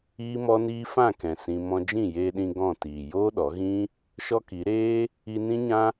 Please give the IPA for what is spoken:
iː˦mɔ˦niː˦ fã˦˨kɛ̃˨ sĩ˧ mɔ̃˧d͡ʒĩ˦˨ jeː˧ɗĩ˧ ɡɔ̃˦˨ tiː˨ joː˦ɗɔ˨˦ɣĩ˦ | ʃɔ˦ki˨˦ ɾeː˦ | i˧nĩ˦ɲã˦

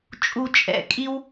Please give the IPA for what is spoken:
t͡ʃʼu˨t͡ʃʼɛ̰˨˩˦kʼi˦w

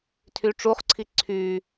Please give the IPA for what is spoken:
tʰyʈ͡ʂuχǀʰi ǀʰy

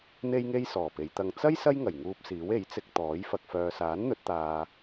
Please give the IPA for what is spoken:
n̪e˥jŋe˥j sɔː˨˩pe˨˧jt̪ɐ˧ŋ t͡sɐ˥j sɐ˥jŋɐ˨˩j ŋuː˧p̚siː˨˥we˨˥jt͡sɪ˧k̚ t̪ɔː˨˥j fɐ˨k̚fœː˨saː˨˥n n̪ɵ˨˥t̚t̪aː˨

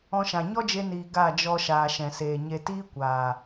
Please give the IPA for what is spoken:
ɔ̃˧ʃã˨ ɲɔ˦d͡ʒe˧niː˨ ɡa˦˨d͡ʒɔ˧ʃaː˨ ʃɛ̃˨seː˨ɲe˧ tiː˦kʷaː˨

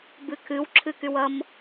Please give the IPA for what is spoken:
bɨkʰɨw ǁʰɨkywʌm

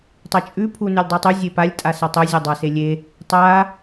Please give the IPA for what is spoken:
tˤɐt͡ʃʼʉ pʰunʉlʲdˤʉtˤʉ zʲepalʲ tʼasɐtˤɵ zʲadˤaselʲe | tˤa

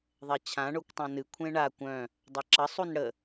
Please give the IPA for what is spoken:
ðˤɛt͡ɕʰãɳokʷtˤœ̃ nɨ kʷʰẽɳa kʷœ̃ | dˤaǁəsˤun ɽə

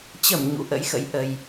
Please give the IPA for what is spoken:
t͡ɕə˧˩m ɲṵ˧˥ʔə̰˧˥jxə̰˧˥j ʔə˨˩j

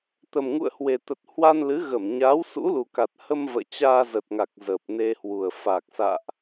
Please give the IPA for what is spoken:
t̪ə˨˩mŋṵ˧˨ə̯hwe˨˩t̪ə˨˩t̚ hwa˧nlɨ˨˦ɣə˧˩m ɲaː˨˦wsṵ˧˥lu˨˩ka˨˩t̚ hə˧m və̰ː˧˨ t͡ɕaː˧zə˨˩t̚ŋa˨˩k̚ zəː˨˩p̚ne˧hwu˨˩ə̯ fa˨˩k̚sa̰ː˧˨ʔ

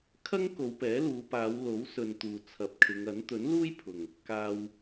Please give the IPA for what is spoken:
kʰɐ˥ŋ ko˨˧wpɛː˨˥luː˨˧ paː˨˧w lo˨˥wsɵ˨n t̪uː˨t͡sʰɐ˨˥p̚kʰɪ˨˧ŋɐ˨˥n t̪ɵ˨˥nluː˥jpʰʊ˨ŋ | kaː˧w

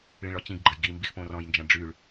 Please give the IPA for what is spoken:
ɭĩɭɔt͡ɕĩɡɡ͡ǃəj ɡi mbixpõrɔ̃jnd͡ʒɐ̃ ɖ͡ʐyɭ

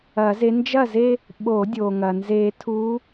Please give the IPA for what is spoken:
ɐ˨˩˦ze˨˦ nd͡ʒɐ˥˩ze˥˧ | ɓo˨˩˦dʲo˩ŋɐ˩ nze˨˩˦tʰu˨˦

